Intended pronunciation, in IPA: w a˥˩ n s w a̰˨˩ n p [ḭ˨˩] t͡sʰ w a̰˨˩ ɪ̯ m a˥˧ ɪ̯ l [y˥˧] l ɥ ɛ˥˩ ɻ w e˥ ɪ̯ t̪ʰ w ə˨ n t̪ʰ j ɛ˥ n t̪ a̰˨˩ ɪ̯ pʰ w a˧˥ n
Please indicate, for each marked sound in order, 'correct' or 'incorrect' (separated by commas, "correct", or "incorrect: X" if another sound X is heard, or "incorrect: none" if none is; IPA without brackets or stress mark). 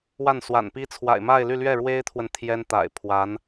incorrect: i˥, correct